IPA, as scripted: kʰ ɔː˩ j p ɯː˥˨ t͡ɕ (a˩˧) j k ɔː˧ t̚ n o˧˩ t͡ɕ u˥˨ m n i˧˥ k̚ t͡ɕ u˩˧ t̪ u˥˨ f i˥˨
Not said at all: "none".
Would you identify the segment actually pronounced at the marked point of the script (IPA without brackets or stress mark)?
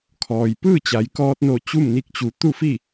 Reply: a˩˧